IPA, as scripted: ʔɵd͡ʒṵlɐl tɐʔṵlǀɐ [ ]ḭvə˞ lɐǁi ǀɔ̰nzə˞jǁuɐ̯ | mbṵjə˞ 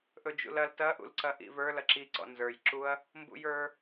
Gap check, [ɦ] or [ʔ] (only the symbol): ʔ